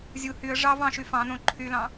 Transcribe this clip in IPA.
zʲu hyə̯ ʐɑv ɑ̃ʃy fɑ̃nõ ǃʰylɑ̃

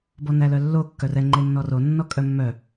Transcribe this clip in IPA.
bɔnælœlːo kːœrɛ ŋ͡ǃenːɔro nːɔkʼœmːœ

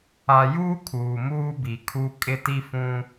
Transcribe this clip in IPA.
a˨juː˦ kʰuː˨muː˦bi˨kʰu˦ kʼɪ˦ti˦ fũ˦

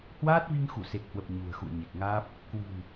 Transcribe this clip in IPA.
hwaː˦˥t̚vi˧ŋxu˧˩ se˨˩k̚hwə˨˩p̚ ɲṳ˨˩ə̯xṵ˧˨ə̯ɲe˨˩k̚ŋaː˦˥p̚ | kwi̤˨˩n

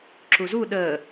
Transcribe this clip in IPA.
ǁuzu ɗəː

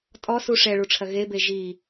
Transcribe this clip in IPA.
tʼɔsu ʂɛɭuʈ͡ʂʰɐ ɣebe ʒi

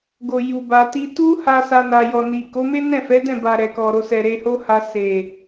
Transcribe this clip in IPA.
ɡo˨ ju˨ba˧ti˦ tu˦ha˧ sa˧na˨ jɔ˨ni˨ ko˨˦me˦nɛ̃˦˨fɛ˨˦ dɛ̃˦˨ba˨ ɾɛ˨kɔ˨ɾo˧sɛ˨ ɾe˧ho˦ha˧ se˨

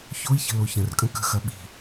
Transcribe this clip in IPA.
çoi̯çə̤ loçə̃rkʼə̃ kə̤xɐ ɓi̤

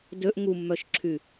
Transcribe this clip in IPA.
døʔ ŋumːœʃǁʰy

